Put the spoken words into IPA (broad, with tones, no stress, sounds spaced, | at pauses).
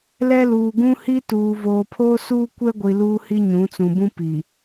l ɛ˦ l uː˨ ɡ ũ˦ h i˦ t uː˨ v oː˨ pʰ oː˦ s uː˦ kʷ ɛ˦ ɡʷ i˨ l uː˦ h i˦ ɲ ũ˨˦ t͡s ũ˨ b ũ˦ p i˨